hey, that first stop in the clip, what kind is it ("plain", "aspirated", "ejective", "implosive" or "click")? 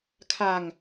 aspirated